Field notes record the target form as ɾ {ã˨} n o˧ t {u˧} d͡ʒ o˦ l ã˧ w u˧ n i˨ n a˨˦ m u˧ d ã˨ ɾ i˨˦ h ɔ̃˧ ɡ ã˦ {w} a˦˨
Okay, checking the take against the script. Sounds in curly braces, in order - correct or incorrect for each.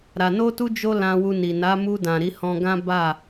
incorrect, correct, incorrect

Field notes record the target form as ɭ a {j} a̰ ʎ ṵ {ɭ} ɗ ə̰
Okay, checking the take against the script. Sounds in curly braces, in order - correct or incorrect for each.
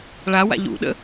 incorrect, incorrect

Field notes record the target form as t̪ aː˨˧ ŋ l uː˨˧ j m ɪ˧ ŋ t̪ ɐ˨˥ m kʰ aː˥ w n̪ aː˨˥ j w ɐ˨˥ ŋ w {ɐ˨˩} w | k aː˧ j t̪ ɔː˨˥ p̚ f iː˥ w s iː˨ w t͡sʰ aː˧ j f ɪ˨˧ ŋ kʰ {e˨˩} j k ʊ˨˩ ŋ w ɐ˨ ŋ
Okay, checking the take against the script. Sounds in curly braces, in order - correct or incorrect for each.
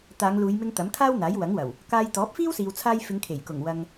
correct, correct

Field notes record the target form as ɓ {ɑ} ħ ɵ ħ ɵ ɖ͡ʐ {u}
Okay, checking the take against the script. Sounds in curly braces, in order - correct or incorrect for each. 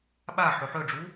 incorrect, correct

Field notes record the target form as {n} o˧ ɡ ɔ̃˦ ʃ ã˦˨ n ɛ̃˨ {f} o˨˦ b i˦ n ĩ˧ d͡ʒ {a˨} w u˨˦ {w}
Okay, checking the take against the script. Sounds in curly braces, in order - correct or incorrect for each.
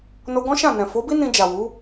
correct, correct, correct, incorrect

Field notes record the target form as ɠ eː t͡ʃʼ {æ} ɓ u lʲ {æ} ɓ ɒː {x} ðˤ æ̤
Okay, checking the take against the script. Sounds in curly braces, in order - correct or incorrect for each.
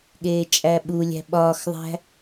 correct, incorrect, correct

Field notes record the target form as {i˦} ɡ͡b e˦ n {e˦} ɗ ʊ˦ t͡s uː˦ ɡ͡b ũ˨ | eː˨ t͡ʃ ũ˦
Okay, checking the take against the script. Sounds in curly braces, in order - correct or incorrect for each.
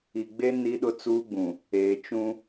incorrect, incorrect

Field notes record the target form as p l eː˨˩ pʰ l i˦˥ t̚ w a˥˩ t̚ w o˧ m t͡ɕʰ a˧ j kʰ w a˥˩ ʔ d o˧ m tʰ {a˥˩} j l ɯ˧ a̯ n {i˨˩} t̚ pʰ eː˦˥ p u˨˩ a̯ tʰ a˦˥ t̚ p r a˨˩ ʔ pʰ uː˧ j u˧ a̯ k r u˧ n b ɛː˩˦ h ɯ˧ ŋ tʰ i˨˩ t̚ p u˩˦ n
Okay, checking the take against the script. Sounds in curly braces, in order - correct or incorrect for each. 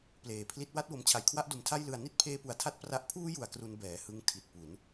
correct, incorrect

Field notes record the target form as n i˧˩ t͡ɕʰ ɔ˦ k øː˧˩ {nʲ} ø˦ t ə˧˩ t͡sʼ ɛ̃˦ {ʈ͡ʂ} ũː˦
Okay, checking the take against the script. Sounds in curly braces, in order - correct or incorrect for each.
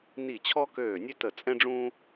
correct, incorrect

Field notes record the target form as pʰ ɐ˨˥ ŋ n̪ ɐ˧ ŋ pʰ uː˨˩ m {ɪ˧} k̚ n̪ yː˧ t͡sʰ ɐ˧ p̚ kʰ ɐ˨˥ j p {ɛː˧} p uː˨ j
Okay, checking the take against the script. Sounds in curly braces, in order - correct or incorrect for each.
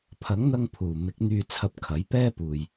incorrect, incorrect

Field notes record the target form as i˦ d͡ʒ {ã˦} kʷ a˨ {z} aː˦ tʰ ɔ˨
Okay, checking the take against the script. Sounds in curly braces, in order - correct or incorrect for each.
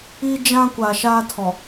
correct, incorrect

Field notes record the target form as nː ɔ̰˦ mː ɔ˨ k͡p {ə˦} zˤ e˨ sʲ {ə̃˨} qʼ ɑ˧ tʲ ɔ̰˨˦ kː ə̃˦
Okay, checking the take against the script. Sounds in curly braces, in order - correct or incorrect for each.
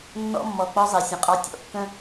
incorrect, correct

